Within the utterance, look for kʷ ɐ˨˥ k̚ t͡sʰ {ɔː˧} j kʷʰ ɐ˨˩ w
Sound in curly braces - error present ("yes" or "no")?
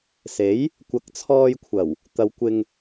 no